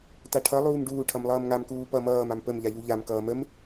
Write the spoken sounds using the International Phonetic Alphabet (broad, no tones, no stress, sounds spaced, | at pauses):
t a ʈʰ ʌ lˠ uː m ɖ uː ʈʰ ʌ m lˠ ʌː m ŋ a m k uː p ʌ m ʌː m a m p ə m ʎ a ʎ u ʎ a m k ʌː m ə m